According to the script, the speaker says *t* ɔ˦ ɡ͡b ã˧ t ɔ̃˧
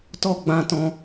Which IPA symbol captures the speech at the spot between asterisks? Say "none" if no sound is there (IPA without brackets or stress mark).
t